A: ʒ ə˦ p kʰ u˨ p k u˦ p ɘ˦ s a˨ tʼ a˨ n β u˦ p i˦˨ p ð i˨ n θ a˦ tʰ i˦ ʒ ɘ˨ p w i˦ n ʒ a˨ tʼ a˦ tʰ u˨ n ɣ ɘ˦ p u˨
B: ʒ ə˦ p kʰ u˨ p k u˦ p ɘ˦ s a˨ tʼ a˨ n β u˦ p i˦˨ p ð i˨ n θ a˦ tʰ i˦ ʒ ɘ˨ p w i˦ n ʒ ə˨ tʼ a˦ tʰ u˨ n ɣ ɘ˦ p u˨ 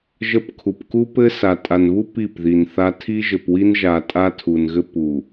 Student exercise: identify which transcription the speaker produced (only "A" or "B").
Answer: A